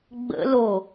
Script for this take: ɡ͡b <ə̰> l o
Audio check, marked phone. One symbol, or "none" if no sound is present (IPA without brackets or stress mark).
ə̰